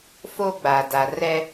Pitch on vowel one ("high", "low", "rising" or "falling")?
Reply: high